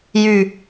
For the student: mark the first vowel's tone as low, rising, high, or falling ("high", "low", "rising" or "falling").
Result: low